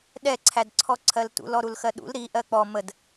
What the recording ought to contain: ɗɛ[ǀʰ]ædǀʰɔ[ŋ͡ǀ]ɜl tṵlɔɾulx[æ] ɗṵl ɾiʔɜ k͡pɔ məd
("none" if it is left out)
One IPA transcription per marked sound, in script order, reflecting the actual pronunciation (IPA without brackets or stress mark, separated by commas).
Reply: ǀʰ, ǀʰ, ɜ